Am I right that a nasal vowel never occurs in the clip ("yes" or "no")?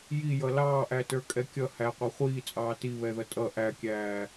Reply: yes